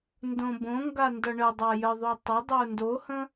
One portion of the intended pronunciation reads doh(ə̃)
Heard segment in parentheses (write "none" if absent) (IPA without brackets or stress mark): ə̃